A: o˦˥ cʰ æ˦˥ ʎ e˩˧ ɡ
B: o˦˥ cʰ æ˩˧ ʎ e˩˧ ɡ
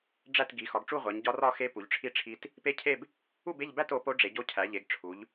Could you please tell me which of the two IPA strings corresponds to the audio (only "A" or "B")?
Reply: B